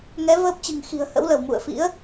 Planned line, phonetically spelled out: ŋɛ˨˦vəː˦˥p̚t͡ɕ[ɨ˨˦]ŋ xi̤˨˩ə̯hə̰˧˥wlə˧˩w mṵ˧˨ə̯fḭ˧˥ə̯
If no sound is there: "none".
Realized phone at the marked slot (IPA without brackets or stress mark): ɨ̤˨˩